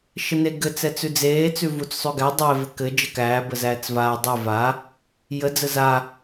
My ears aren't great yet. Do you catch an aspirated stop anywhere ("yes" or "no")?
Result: no